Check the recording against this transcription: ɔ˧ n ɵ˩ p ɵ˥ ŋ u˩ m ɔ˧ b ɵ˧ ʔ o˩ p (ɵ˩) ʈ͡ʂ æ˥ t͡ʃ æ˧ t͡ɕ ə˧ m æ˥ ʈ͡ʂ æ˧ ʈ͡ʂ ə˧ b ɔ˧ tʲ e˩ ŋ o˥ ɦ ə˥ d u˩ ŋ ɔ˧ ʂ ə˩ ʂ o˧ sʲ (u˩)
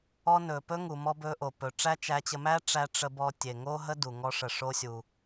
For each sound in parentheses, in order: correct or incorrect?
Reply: correct, correct

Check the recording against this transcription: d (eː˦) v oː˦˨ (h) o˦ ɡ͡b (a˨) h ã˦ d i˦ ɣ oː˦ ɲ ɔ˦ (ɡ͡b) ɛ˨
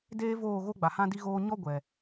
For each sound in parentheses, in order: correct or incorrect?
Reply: correct, incorrect: ɣ, correct, incorrect: ɡʷ

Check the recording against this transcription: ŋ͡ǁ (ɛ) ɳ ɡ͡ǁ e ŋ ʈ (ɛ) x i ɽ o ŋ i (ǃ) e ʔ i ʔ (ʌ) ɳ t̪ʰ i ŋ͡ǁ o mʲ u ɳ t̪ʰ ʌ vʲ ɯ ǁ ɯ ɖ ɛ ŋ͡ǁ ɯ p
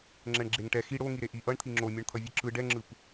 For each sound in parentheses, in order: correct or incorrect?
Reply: correct, correct, incorrect: ɾ, correct

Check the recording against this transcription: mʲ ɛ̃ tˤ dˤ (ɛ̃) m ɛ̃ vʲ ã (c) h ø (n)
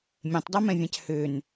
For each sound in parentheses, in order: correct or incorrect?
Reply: incorrect: ɛ, correct, correct

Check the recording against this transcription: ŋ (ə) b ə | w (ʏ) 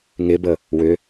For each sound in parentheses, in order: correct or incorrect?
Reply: incorrect: ɪ, correct

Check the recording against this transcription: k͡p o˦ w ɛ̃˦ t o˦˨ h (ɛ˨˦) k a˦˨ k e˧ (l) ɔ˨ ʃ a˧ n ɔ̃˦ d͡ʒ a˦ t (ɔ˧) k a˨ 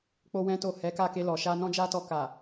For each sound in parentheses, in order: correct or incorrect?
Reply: correct, correct, correct

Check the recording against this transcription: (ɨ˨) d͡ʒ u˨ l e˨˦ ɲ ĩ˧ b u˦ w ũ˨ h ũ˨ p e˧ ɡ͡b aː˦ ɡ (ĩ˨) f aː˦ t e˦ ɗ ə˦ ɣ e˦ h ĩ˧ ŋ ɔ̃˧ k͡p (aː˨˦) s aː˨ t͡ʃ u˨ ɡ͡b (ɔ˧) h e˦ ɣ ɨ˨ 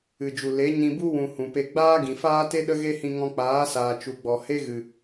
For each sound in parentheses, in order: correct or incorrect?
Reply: correct, correct, correct, incorrect: ɔ˨

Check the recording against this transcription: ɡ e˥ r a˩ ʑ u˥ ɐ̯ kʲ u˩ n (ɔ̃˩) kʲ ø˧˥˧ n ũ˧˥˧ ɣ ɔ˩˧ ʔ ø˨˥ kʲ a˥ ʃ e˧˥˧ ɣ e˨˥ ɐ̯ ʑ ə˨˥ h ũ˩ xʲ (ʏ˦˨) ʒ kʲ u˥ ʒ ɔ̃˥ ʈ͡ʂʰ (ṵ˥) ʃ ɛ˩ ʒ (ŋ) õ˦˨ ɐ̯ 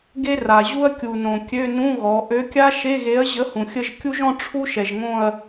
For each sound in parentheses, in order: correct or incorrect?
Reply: incorrect: õ˩, incorrect: ə˦˨, incorrect: u˥, correct

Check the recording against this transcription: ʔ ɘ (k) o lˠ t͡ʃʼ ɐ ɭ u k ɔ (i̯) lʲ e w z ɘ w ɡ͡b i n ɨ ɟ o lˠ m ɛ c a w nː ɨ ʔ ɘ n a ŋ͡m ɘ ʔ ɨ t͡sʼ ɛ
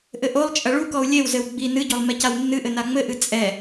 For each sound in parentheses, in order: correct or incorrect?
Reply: incorrect: ʔ, incorrect: u̯

